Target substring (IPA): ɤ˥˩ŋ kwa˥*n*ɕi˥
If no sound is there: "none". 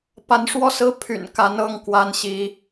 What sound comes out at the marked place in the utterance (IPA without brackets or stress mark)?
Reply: n